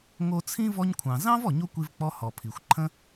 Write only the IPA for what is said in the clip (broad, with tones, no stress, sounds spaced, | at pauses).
ŋ o˧ t͡sʰ ĩ˥ v ɔ˧ ɲ kʷʰ ɑ̃˩ z ɑ̃˥ v ɔ˩ ɲ o˥ kʷ i˧ v k͡p ɔ˧ h ɔ˩ pʰ i˩ xʷ ǃʰ ə̃˥